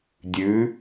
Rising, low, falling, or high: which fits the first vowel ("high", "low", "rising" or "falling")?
rising